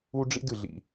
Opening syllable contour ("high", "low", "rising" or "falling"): high